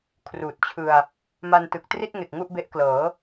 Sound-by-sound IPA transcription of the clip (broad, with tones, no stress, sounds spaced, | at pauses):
kʰ r uː˨˩ t̚ t͡ɕʰ ɯ˧ a̯ | m a˧ n t ɯ˨˩ k̚ t r i˥˩ t̚ ŋ e˨˩ k̚ ŋ u˥˩ ʔ b e˦˥ ʔ k l ɤː˩˦